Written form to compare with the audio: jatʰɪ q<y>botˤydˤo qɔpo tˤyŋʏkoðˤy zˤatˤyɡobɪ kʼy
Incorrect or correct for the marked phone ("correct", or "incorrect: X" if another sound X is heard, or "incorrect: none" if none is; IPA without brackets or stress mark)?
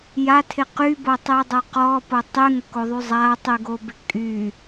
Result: correct